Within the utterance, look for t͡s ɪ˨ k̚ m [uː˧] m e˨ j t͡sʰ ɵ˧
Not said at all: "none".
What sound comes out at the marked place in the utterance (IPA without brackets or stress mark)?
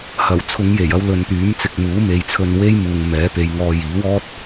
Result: uː˨˥